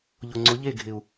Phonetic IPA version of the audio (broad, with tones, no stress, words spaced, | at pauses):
ʎʊ˨ŋ͡ǀʊ˨˦ʎe˦˨ ɡʱɪ˨u̯